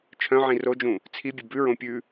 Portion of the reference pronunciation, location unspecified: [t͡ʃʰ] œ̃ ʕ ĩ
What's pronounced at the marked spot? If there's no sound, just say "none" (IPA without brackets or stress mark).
t͡ʃʰ